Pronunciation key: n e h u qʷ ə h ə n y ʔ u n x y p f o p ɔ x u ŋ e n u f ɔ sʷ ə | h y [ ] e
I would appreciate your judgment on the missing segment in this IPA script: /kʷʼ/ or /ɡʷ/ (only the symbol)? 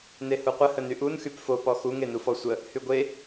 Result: ɡʷ